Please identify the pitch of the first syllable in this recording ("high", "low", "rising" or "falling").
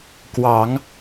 rising